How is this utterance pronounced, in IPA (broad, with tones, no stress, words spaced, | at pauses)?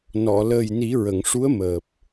nɔ˨˩˨ ləː˨˩jni˨˩˦ɹə˨˩˨ŋʂu˧˥ə̯ məː˨˩p̚